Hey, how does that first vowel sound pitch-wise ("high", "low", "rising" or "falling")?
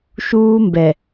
high